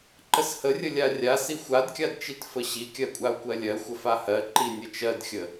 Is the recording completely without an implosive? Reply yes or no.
yes